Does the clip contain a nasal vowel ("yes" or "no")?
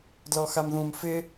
yes